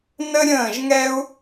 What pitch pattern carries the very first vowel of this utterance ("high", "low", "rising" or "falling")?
high